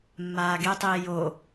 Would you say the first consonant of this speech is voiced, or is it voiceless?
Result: voiced